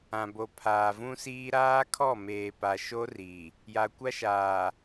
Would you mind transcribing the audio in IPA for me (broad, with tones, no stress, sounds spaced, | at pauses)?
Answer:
ã˨ b o˨ pʰ aː˨ v ũ˦ s iː˦ ɾ aː˦ kʰ ɔ˦˨ m eː˨ p a˨ ʃ o˦ r i˨ | j a˨ kʷ a˦ ʃ aː˨